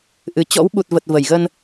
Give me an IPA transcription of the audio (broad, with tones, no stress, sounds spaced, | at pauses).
ʔ ɨ˨˩ t͡ɕ ɔ̰˧˥ w ɓ u˨˩ t̚ v ə˨˩ t̚ v ə˧˩ j ɣ ə˧ n